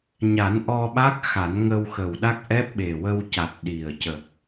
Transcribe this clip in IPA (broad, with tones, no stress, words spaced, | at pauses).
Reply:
ɲa˨˩˦nʔɔ˧ɓa˦˥k̚ xa˨˩˦n ŋə˧wxə˨˩wɗa˦˥k̚ ʔɛ˦˥p̚ɓe˨˩wə˧wca˨˩t̚ ɗi˨˩ə̯ cə˨˩k̚